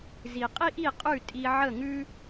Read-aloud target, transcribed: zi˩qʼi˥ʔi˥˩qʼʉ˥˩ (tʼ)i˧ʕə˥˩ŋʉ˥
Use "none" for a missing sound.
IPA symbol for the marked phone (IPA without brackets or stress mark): tʼ